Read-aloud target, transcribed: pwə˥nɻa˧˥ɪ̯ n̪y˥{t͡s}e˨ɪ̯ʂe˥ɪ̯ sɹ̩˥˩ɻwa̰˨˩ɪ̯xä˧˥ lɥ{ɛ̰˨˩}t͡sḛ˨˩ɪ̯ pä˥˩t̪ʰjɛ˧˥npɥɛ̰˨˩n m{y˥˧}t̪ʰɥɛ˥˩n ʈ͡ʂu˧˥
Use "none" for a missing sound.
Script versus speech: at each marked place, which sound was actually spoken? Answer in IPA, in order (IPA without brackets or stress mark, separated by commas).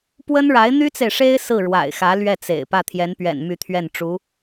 t͡s, ɛ˥˩, y˥˧